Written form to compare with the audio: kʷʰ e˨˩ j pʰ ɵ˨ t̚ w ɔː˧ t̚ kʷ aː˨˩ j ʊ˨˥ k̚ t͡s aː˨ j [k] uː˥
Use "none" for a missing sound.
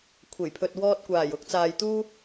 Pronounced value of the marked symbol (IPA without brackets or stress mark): t̪